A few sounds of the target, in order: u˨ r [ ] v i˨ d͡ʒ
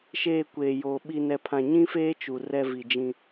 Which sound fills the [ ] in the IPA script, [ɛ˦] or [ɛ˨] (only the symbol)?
ɛ˦